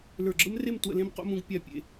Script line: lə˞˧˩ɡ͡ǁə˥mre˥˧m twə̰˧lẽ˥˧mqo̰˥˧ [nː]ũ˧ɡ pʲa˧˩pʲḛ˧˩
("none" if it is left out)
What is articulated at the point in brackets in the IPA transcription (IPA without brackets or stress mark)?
m